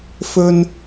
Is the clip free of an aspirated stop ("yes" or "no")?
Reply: yes